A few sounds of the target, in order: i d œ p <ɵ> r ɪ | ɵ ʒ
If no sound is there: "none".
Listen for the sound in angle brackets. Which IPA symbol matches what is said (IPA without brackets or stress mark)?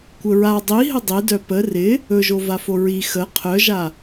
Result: ə